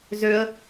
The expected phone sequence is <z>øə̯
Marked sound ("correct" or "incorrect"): correct